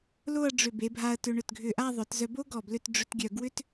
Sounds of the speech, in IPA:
l o˥˧ ɐ̯ ɖ͡ʐ ʏ˧˩ b e˩˧ bʱ a˧ ɐ̯ t ʏ˧ ɳ ʏ˧˩ t ɡʱ ʏ˧˩ ʔ a˥˧ ðˤ œ˩˧ t z œ˧ b o˥ ɡ ɔ˧˩ b l ʏ˥˧ t ɖ͡ʐ ʏ˥ t ɡʲ œ˧ ɡ w ʏ˥ t

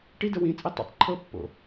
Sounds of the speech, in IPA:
ʈ i d ə w ĩ t͡sʼ i tˤ ḭ tˤ ǃʰ ɤ pː o̰

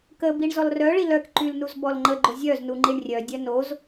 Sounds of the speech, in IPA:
k ə b i ɳ z ɔ l r œ ɭ i l œ k ǃ y l n u z b ɔ l ŋ͡ǃ ə ɡ͡ǃ o zʲ œ z n u ŋ͡ǃ i ɳ rʲ œ dʲ œ n o z

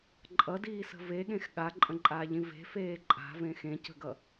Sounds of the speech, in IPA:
ǃʼ ʌ d iː s ə̤ v e ɠ ẽ x ɠ a ǃʼ ə̃ ǃʼ aː ʎ ĩ v e̤ f eː ǃʼ a̤ v ẽ x ẽ c ə̤ ɡ ʌ

